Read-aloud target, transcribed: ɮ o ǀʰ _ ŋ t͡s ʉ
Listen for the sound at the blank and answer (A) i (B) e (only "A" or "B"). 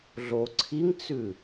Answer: A